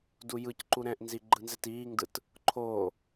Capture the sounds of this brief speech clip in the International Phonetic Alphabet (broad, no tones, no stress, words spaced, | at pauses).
dujɯcǃu ɾɛ̃ʔnzi ɡ͡ǃɯnzɛtiːŋdɯt | ǃʰo